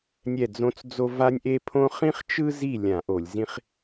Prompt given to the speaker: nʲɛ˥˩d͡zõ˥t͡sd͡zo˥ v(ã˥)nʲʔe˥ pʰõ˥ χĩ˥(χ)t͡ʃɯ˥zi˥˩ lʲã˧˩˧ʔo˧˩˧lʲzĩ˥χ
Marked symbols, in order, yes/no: no, yes

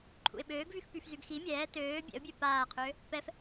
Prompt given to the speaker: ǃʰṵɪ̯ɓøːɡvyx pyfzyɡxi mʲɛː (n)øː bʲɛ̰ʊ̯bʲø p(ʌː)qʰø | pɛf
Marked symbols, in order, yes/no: no, no

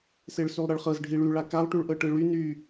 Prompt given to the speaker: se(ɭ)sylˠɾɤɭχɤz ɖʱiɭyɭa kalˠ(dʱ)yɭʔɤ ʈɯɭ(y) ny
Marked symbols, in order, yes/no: yes, no, yes

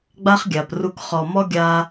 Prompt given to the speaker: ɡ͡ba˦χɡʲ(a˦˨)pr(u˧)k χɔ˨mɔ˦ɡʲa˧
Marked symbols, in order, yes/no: no, yes

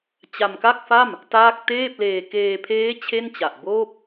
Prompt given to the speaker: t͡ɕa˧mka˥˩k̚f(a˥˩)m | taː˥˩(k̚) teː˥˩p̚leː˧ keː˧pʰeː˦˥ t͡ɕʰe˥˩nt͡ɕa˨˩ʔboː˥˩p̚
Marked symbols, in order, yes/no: yes, yes

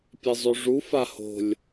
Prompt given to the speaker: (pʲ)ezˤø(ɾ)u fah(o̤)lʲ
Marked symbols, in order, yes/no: yes, no, yes

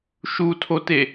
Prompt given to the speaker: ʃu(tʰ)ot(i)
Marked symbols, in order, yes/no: yes, no

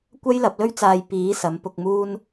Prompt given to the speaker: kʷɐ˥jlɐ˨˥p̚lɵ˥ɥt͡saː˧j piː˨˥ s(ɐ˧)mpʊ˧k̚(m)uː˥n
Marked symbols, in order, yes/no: no, yes

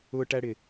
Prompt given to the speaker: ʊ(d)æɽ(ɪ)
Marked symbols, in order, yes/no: no, yes

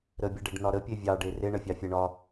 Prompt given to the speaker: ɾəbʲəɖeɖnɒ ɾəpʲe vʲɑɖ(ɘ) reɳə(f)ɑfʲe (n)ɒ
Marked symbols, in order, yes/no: no, no, no

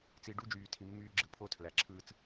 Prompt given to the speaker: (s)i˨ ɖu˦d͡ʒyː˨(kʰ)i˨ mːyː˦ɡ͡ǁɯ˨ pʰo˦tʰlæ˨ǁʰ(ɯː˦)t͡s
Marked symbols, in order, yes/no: no, no, yes

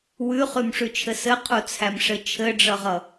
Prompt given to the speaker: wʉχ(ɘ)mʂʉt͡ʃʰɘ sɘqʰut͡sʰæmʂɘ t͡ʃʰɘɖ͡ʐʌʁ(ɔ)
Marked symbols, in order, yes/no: no, no

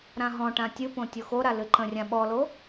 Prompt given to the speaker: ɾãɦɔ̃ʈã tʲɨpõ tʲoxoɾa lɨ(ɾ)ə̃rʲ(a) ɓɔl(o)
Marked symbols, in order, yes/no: no, no, yes

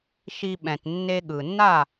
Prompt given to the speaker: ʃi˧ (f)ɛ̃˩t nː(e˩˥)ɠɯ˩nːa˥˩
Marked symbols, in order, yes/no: no, no

